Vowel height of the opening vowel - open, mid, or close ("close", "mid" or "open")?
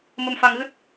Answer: mid